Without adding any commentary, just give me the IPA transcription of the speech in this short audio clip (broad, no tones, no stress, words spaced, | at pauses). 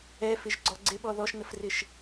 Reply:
ɛfɪʒɡ͡ǀɔ ɡ͡ǀɪɓɔ ðɔʃnəfrɪʃ